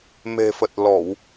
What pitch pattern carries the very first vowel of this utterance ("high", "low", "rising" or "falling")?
low